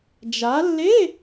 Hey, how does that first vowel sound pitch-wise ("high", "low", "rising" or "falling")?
rising